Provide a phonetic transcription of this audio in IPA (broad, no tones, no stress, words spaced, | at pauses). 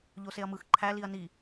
ʎoseɐ̯mɯx ǃʰæliɐ̯ ni